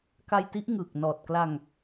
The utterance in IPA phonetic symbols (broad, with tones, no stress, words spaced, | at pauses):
ka˧jti˦˥ʔŋɯː˨˩k̚ nɔː˨˩t̚kla˧ŋ